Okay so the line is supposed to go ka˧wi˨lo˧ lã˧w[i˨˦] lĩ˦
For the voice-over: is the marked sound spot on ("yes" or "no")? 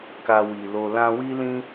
no